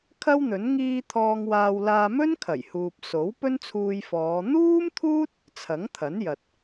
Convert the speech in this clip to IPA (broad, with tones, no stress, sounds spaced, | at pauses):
kʰ ɐ˥ w n̪ ɵ˨˥ n ŋ iː˧ t̪ʰ ɔː˧ ŋ w aː˧ w l aː˧ m ɵ˥ n kʰ ɐ˨˩ j h uː˨ p̚ s o˨˥ w p ɵ˥ n t͡sʰ uː˧ j f ɔː˨˧ n̪ uː˥ m t̪ʰ uː˥ t̚ | t͡sʰ ɐ˨˥ ŋ t̪ʰ ɐ˨˥ n j ɐ˨ t̚